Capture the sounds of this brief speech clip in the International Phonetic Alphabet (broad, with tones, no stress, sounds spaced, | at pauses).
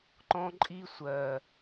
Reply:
ǃ ɔ̃˦ ǃʼ i˦ sʷ ɜ˨